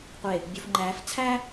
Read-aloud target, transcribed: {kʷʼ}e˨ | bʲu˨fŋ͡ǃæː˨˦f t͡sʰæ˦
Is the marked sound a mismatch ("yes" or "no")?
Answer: yes